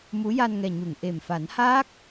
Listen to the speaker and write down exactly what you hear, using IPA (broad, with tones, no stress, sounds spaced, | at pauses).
m u˧˥ j a˧ n ŋ ɛ˨˩ ɲ u˨˩˨ ŋ ʔ e˨˩ m f a˨˩˦ n h aː˦˥ k̚